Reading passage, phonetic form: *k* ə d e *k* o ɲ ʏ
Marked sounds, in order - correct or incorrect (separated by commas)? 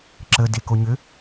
incorrect, correct